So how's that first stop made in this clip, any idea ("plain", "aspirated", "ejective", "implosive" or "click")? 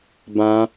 plain